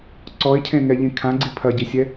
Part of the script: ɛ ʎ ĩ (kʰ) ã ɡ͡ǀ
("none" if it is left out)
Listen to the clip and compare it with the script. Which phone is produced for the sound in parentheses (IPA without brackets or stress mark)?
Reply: kʰ